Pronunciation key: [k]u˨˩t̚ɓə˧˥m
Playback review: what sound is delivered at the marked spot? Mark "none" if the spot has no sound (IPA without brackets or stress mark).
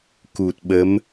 k